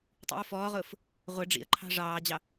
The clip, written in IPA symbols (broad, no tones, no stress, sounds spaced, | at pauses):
tˤ ḭ ʊ̯ f ɔː ʁ ʊː f | ʁʷ ɪ ɖ͡ʐ ḭ ə̯ ǃʰ ɑ̤ ʐ ɑː d͡ʑ ɑ